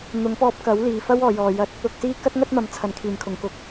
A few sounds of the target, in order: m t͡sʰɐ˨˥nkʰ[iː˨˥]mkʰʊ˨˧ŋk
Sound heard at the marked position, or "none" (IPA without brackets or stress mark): iː˨